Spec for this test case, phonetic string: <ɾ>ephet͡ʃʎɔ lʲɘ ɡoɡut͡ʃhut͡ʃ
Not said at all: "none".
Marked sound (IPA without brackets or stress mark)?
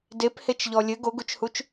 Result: d